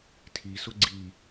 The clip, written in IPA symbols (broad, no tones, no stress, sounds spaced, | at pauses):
tʰ i s ʊ ɡ͡ǀ i